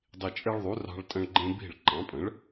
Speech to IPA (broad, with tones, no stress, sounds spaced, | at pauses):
dˤ i˨˩ t͡ʃʼ e˦ ɭ ðˤ u˩˥ r ɑ̤˦ ɭ tʼ ə̃˦ ɭ ɡ͡ǃ ẽ˦ b i̤˥˩ ɭ ǃ ɑ̃˩˥ pʼ ə̃˩˥ ɭ